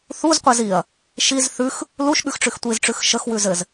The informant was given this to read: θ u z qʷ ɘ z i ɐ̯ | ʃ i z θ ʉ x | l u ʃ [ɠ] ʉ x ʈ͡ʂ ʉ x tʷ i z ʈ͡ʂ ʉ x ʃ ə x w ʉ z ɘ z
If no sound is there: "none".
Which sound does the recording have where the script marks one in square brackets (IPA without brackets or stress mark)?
ɠ